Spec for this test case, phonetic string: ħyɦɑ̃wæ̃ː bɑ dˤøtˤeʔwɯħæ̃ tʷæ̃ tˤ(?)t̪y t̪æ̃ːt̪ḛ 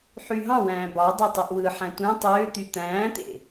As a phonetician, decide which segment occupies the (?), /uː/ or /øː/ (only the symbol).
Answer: øː